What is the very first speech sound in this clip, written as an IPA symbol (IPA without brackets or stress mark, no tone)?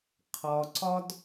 qʰ